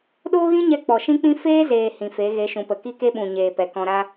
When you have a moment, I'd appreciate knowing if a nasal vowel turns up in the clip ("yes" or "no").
yes